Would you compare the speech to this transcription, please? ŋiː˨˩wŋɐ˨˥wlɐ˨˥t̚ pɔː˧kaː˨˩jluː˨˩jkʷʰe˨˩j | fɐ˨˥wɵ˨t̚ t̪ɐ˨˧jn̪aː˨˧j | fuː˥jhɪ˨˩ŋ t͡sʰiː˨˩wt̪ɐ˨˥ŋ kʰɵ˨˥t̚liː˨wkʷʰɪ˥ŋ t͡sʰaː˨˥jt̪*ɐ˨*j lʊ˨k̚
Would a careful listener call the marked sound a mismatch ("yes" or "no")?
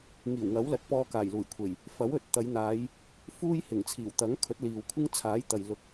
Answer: no